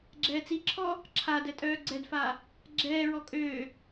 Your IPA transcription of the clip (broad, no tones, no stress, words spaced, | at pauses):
ɡ͡ǁɛːt͡siǁʰɔː | ǁʰadɛ tʼœːɡ͡ǀɛdfaː | ɡ͡ǁɛːɹɔ kʼøː